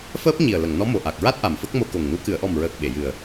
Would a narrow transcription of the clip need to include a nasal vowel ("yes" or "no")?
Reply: no